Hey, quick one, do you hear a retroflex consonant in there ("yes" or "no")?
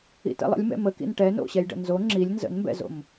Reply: yes